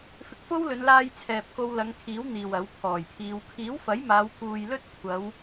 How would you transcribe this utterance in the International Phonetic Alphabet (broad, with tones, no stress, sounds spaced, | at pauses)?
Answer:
f ɪ˧ k̚ f o˥ w l ɵ˨˧ n l aː˧ j t͡sʰ ɛː˨ p̚ k o˧ w l ɐ˨˧ ŋ kʰ iː˨˥ w n̪ iː˨ w ɐ˨˥ w pʰ ɔː˨˩ j pʰ iː˨˧ w kʰ iː˨˥ w f ɐ˨˥ j m aː˨˧ w k uː˨ j l ɵ˥ t̚ kʷʰ ɐ˨˧ w